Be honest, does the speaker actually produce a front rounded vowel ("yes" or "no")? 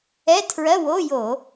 no